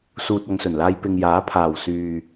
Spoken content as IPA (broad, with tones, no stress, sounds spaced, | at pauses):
s uː˨ t̚ ɐ˨˧ ŋ s ɵ˨˩ n l aː˧ j p ɪ˨ ŋ j aː˨˥ pʰ aː˨˩ w s yː˨